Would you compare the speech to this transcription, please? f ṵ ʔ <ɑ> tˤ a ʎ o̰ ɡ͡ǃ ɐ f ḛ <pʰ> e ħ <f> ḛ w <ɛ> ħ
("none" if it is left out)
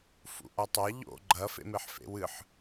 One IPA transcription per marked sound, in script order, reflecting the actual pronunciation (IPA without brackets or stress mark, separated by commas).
a, m, f, ɨ